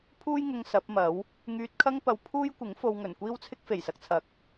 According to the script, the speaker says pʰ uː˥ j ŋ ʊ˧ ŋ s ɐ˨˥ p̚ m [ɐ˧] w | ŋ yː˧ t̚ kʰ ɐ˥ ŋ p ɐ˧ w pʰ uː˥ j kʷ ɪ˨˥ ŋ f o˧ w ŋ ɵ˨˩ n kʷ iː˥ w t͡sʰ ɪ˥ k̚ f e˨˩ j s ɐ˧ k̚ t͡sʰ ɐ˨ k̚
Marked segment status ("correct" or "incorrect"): incorrect